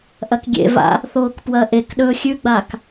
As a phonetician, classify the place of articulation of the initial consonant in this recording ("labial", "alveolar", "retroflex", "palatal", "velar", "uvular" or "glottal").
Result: glottal